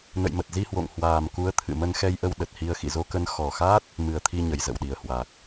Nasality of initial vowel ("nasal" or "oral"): oral